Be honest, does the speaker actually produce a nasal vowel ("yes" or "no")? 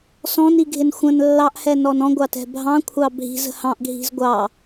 yes